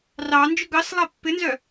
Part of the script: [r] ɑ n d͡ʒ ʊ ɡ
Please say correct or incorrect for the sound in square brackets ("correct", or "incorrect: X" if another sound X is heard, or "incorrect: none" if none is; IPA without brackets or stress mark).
correct